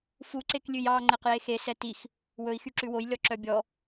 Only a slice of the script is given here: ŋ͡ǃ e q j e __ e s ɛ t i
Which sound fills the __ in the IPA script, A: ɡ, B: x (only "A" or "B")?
B